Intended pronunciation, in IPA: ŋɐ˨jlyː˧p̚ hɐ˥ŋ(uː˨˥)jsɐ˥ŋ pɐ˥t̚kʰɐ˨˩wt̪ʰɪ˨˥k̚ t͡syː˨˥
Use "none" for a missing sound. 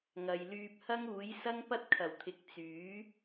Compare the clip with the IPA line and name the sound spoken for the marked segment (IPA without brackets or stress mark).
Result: uː˨˥